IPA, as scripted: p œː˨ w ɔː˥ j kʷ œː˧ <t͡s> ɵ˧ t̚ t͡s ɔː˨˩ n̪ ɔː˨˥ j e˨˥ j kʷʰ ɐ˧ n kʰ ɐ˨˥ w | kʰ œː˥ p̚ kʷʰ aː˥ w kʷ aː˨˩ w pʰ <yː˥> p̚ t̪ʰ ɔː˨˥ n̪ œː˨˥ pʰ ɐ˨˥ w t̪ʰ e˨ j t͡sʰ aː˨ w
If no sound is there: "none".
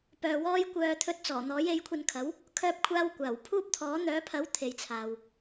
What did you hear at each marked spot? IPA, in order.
t̪ʰ, uː˥

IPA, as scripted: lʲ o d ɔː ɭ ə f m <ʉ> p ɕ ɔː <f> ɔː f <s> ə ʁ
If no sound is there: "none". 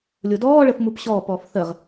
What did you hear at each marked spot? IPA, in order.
u, p, θ

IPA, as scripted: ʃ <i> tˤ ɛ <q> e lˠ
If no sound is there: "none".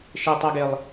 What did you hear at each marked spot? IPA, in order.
e, ɡ

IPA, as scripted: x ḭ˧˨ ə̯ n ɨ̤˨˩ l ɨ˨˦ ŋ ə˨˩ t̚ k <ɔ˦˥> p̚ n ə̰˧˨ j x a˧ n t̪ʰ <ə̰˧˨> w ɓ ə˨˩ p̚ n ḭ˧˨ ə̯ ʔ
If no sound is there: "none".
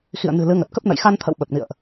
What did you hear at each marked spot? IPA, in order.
ə˦˥, ə̰˧˨

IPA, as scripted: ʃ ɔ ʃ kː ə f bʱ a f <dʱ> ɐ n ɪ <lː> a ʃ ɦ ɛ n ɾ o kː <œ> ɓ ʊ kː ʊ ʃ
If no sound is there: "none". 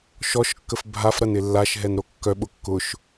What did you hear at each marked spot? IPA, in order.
ɾ, lː, œ

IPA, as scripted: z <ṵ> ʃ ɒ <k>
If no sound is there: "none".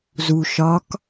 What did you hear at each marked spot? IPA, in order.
u, k

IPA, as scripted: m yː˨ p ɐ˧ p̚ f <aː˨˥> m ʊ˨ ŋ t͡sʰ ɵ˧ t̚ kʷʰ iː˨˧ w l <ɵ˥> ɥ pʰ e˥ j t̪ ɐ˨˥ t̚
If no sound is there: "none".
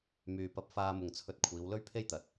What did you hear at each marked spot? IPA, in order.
aː˧, ɵ˥

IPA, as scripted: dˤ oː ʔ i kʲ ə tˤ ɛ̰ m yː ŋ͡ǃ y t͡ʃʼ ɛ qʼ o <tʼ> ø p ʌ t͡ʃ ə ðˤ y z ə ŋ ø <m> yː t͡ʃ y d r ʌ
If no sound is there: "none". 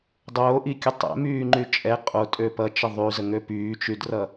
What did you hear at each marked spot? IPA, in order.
tʼ, p

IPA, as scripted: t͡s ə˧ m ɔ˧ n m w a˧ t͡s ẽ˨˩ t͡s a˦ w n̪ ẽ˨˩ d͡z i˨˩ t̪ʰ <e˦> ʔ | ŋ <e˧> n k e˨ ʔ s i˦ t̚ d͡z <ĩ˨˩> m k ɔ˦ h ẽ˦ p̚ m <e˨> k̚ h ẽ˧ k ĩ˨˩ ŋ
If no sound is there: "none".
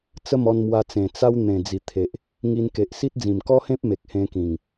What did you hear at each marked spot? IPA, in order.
e˨, i˧, ĩ˨˩, e˨

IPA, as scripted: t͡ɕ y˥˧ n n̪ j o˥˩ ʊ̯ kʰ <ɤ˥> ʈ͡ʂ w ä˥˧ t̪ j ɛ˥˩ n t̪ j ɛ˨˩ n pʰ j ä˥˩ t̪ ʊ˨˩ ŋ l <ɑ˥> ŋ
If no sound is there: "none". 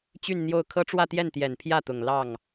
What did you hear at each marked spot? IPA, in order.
ɤ˥, ɑ˥˩

